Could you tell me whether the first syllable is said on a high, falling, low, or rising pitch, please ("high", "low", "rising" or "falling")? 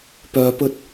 low